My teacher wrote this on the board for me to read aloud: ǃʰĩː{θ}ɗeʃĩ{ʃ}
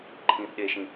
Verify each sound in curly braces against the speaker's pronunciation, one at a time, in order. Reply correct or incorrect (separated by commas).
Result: correct, incorrect